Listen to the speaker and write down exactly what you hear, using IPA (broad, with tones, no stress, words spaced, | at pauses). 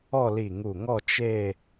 ɔ˥˧li˧˩ŋu˧˩ŋɔ˥˧ t͡ʃe˥˧